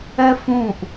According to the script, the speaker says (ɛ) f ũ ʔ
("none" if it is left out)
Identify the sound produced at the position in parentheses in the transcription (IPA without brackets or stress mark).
ɛ